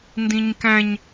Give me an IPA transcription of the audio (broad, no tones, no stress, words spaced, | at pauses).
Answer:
ndĩɲkæ̃ɲ